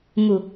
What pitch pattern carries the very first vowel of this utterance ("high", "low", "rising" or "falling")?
low